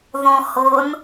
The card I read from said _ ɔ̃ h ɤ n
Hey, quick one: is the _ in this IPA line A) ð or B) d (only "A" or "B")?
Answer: A